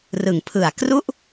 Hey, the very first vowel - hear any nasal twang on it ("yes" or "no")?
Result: no